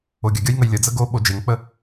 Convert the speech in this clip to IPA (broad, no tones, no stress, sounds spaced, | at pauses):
o ɡʲ ə ɡʲ ʌ j ŋ ə j lʲ ə d͡z ə ɡ o ɓ o d͡ʒ e ŋ k͡p ə